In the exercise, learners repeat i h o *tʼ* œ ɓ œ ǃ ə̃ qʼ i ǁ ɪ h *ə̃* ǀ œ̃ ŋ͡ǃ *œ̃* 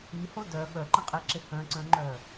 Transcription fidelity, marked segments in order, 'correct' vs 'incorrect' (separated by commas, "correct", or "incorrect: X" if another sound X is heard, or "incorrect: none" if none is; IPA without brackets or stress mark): incorrect: d, incorrect: œ̃, incorrect: œ